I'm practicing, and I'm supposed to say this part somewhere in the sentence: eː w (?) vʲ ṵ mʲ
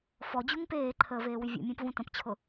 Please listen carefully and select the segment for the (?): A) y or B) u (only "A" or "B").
A